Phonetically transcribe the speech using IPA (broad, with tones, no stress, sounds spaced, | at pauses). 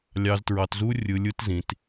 lʲ ɑ˧ z t ɹ ɑ˧ t z u˦ rʲ ɯ˧ lʲ ɯ˦ t z ĩ˧ t